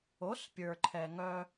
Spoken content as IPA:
o˩˥spʲə˞˩ǃʰɛ˩ ŋœ˧

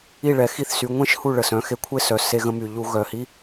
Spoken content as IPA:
i˥˧ɭɛ˩˧ xi˥˧θsy˩˧ ŋʷẽ˥˧ʃhu˥˩ ɭə˨˩sœ̃˩˧xe˧ kʷʰe˥˧sœ˩˧ se˧ɣə̃˧my˨˩ ʎu˧ ɣœ˨˩hi˦˥

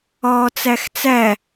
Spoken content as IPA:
ɒːt͡sæxt͡sæ

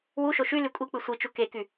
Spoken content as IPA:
wuʃo ʃy lykʷʼik͡pɯ sʷit͡ʃu keky

